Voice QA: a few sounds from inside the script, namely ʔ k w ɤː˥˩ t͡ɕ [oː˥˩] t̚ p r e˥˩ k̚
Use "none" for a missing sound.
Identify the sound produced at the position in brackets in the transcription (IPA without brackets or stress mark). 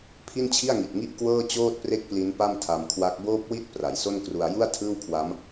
oː˥˩